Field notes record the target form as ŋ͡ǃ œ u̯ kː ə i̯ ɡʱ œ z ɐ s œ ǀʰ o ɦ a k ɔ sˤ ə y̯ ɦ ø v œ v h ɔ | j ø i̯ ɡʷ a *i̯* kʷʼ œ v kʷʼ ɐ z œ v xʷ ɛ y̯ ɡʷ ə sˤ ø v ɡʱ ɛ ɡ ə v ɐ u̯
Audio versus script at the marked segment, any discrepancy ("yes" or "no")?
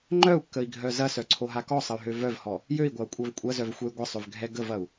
yes